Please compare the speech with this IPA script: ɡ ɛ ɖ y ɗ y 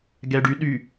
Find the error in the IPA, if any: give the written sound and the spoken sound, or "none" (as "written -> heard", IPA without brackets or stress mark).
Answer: none